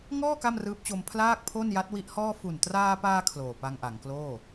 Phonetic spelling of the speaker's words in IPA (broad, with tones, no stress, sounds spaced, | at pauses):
ŋ ɔː˥˩ k a˥˩ m r ɯː˦˥ p̚ t͡ɕ o˧ m pʰ l aː˥˩ k̚ pʰ o˥˩ n j a˦˥ t̚ w i˦˥ ʔ h ɔː˥˩ f u˨˩ n t r aː˧ p aː˧ kʰ l oː˨˩ p a˧ ŋ ʔ a˩˦ ŋ k l oː˥˩